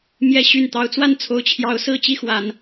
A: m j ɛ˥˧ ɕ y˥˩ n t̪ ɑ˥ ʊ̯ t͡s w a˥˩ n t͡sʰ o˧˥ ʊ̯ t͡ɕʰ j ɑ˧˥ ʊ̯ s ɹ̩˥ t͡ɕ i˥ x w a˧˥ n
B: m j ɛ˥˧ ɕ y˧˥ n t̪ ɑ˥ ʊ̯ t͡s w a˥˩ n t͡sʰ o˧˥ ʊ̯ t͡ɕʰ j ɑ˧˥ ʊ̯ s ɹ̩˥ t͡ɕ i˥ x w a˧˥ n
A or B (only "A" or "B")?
A